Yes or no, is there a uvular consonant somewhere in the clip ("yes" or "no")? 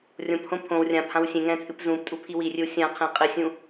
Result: yes